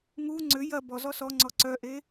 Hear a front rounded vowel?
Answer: yes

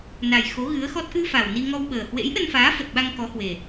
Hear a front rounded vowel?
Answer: no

